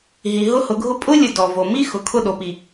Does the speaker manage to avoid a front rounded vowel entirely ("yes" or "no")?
yes